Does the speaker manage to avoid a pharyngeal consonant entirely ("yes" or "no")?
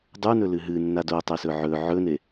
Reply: no